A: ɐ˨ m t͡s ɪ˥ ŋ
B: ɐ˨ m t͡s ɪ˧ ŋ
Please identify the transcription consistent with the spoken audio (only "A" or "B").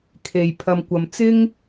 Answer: A